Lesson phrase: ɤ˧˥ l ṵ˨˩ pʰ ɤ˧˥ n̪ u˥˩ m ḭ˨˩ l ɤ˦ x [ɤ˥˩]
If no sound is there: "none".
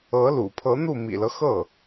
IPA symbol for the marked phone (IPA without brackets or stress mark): ɤ˥˩